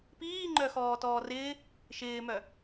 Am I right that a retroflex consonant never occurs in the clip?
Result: yes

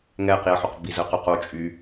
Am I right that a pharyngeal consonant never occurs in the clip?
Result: no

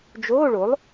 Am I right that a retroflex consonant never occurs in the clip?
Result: no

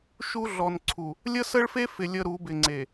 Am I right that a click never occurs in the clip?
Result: no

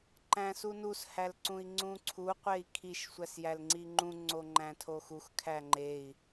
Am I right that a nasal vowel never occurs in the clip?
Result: no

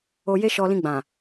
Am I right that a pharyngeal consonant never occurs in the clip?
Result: yes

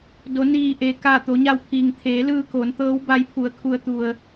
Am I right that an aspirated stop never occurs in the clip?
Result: no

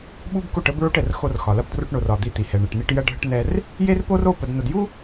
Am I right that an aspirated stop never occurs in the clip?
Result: yes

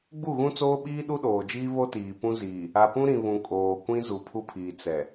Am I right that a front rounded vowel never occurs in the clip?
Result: yes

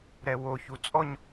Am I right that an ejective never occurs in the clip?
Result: no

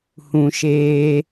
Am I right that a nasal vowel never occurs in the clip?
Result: no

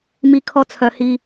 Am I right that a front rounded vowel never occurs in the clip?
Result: no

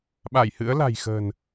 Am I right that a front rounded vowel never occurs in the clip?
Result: yes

